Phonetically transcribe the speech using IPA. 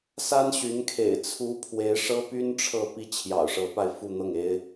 s a˥ n ɕ y˧˥ n kʰ ḛ˨˩ ɪ̯ t͡sʰ u˥ pʰ w e˧˥ ɪ̯ ʂ ɤ˥ p y˥ n ʈ͡ʂʰ ɤ˥˩ p i˥ t͡ɕʰ j ɑ̰˨˩ ʊ̯ ʂ ɤ˧˥ p a˧ ɪ̯ f u˥˧ n̪ ɤ˥˩ ŋ e˥ ɪ̯

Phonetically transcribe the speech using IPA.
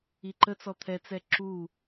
i ǃ ə t͡s ɔ t̪ʰ ɛ t͡s ɛ ǁ u

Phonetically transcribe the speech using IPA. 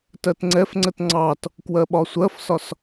t ɜ t ŋ͡ǀ ɛ f ŋ͡ǀ ə t ŋ͡ǀ ɑ t | k w ɜ ɓ ɒ sʷ ɜ f s ɒ s

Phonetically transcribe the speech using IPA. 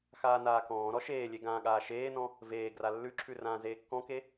x aː n aː k ɔ̃ː ɾ ɔ ʃ eː lʲ e ɡ ãː ɠ aː ʃ eː n ɔ̃ | v eː ɡ r a lː ʉ ǁʰ ʉ r ãː z eː kː ɔ̃ k e

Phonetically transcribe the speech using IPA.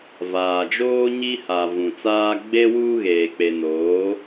v aː˨ d͡ʒ oː˦ ɲ i˦ h a˨ v ũ˨ t͡s aː˦ ɡ͡b e˦ w uː˦ ɣ eː˨ k͡p e˨ n oː˨˦

